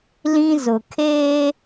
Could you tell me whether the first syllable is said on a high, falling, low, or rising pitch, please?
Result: high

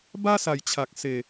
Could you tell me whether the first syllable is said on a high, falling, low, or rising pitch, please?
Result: high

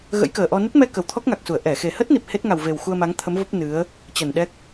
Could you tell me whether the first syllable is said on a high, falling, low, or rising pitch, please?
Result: rising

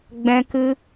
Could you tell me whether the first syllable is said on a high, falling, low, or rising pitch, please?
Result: high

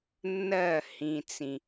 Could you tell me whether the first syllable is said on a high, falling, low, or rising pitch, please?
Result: falling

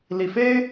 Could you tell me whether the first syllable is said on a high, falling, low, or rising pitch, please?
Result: low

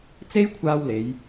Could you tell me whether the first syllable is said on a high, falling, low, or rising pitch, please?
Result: high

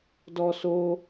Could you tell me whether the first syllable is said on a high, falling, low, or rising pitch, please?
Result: high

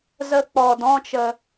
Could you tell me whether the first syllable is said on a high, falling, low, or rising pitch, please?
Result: high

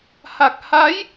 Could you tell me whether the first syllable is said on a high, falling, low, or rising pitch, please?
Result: low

